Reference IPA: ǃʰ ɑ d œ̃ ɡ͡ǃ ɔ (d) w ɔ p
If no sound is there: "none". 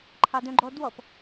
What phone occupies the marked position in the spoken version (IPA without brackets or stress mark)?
d